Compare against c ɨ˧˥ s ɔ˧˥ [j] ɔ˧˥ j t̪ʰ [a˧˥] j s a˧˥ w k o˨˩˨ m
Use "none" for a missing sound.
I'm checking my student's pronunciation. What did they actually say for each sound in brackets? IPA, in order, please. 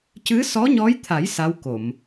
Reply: ɲ, a˨˩˦

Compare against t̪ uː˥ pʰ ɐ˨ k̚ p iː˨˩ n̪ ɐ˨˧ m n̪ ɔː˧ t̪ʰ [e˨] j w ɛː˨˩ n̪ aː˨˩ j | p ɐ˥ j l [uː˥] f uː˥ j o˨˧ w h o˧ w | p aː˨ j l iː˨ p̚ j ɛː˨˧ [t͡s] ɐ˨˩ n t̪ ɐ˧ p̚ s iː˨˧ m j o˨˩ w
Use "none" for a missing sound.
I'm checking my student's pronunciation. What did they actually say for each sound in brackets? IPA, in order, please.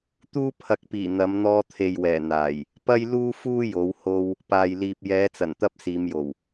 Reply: e˨, uː˥, t͡s

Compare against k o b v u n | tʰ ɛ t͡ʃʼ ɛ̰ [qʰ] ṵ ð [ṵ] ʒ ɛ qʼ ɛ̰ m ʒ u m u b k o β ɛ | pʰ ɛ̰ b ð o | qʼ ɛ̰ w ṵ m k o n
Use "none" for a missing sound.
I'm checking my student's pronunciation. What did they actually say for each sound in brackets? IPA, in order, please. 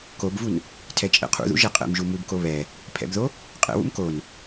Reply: qʰ, ṵ

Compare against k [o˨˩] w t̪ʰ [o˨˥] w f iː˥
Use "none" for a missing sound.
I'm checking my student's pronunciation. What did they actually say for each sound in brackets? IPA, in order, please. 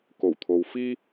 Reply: o˨˩, o˨

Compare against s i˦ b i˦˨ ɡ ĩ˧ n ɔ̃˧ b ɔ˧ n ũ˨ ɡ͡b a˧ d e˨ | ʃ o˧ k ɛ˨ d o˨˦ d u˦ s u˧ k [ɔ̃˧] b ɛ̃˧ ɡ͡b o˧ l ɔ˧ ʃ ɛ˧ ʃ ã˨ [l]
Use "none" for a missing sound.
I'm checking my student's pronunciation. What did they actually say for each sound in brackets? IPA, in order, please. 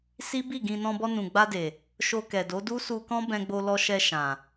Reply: ɔ̃˦, none

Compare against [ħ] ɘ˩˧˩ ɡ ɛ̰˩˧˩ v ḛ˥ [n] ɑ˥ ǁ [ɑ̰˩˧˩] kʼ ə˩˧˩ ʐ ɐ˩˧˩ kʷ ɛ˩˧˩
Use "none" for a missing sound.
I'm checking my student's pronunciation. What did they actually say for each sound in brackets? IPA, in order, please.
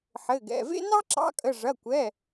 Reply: ħ, n, ɑ̰˧˥

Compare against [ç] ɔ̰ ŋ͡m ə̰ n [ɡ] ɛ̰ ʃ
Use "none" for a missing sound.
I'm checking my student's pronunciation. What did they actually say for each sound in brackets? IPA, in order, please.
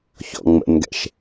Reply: ç, ɡ

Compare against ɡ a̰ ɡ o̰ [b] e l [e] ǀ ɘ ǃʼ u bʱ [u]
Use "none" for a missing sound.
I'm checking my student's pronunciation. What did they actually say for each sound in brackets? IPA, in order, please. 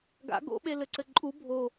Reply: ɓ, ɘ, o

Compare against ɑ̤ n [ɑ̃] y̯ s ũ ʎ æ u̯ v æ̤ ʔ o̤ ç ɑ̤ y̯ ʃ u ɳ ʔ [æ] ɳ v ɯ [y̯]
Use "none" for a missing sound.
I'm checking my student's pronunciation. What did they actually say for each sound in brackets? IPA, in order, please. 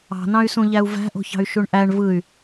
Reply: ɑ̃, æ, y̯

